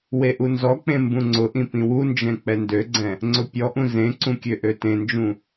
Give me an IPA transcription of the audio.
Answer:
w e ʔ u n z ɔ k͡p ẽ m b ũ ŋ͡ǀ ʊ ʔ ĩ p ĩ w u n d͡ʒ ɛ̃ k͡p ɛ n d ø ɡ͡ǀ ɛ̃ | ŋ͡ǀ ʊ pʲ ɔ ʔ ũ z ẽ ǀ ũ kʲ ø ʔ ø t ẽ n d͡ʒ ũ

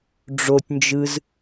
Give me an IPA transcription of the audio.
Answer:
ɖ͡ʐ o tʲ n d͡ʒ ɯ z

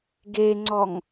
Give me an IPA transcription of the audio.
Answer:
ɡ e ŋ͡ǀ ɔ ŋ

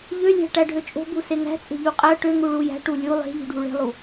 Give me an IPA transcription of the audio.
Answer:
ʎ ø lʲ æ̤ ʈ æ ɖʱ ø t͡ʃʼ o̤ b u s e ŋ æ̤ t͡sʼ e̤ ʎ u qʼ æ ʈ ø ŋ u ɭ u j æ̤ ʈ u lʲ u lˠ e̤ ʎ ṳ ɖʱ u ɭ e̤ lˠ u

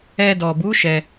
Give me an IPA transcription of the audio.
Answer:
ɛ˧ d ɔ˨ b u˨˦ ʃ ɛ˧

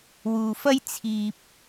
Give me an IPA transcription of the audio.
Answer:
w uː˨ f ɐ˥ j t͡sʰ iː˧ p̚

